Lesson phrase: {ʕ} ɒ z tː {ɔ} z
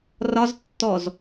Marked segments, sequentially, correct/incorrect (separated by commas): incorrect, correct